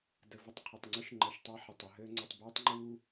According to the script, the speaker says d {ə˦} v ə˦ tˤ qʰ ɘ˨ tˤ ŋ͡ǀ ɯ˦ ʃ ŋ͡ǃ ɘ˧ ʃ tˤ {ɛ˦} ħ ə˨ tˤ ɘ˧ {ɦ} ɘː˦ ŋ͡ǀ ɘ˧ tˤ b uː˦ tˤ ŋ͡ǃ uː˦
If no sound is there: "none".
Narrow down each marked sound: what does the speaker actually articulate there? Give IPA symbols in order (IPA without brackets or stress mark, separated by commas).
ə˧, ɛ˦, ɦ